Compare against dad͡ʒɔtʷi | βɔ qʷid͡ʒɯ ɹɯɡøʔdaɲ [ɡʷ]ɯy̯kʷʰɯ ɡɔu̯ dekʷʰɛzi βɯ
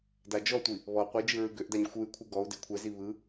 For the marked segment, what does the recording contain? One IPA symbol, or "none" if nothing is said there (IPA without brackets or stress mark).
xʷ